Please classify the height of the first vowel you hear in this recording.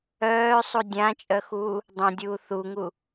mid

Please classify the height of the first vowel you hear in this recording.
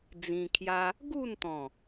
high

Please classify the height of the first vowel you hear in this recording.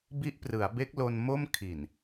high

